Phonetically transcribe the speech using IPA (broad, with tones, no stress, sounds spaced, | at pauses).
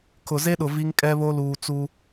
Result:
kʰ ʊ˨ z e˦ ɗ ʊ˨ v i˦ ŋ kʼ ɛ˦ β o˦ l uː˨ t͡s u˦